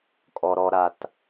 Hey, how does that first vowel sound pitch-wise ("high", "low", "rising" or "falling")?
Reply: high